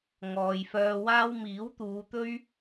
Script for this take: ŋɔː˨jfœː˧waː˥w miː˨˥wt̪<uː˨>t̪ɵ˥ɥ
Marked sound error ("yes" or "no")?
yes